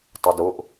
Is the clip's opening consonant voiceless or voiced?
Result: voiceless